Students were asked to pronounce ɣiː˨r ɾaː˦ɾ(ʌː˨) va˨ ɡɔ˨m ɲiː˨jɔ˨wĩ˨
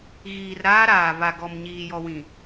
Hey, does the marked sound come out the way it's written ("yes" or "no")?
no